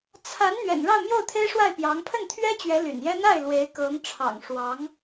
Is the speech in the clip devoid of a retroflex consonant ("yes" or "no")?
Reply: no